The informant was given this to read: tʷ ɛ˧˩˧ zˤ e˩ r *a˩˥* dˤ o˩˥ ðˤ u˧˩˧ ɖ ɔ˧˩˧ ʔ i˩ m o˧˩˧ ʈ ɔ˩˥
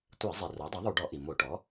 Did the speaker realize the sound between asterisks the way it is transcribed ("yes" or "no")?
yes